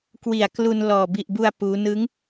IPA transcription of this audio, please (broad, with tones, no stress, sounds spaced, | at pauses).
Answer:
k w i˨˩ a̯ k l u˧ n l ɔː˨˩ b i˨˩ ʔ b u˧ a̯ p uː˦˥ n ɯ˦˥ ŋ